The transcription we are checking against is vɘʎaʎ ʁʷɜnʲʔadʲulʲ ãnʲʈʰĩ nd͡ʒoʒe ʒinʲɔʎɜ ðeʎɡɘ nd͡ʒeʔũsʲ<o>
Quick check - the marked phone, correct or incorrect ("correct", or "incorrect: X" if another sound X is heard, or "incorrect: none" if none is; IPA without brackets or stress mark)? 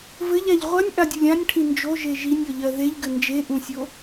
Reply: correct